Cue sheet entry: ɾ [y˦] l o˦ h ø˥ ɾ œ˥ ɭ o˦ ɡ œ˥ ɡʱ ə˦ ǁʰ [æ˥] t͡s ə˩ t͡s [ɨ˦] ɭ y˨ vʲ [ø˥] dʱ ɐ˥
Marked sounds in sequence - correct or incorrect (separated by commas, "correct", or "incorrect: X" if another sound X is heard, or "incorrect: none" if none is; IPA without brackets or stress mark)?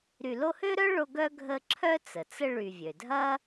incorrect: y˨, incorrect: œ˥, incorrect: ə˦, incorrect: ø˩